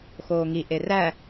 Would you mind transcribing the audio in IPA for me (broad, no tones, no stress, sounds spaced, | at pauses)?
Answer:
x oː ŋ i ʔ e r æ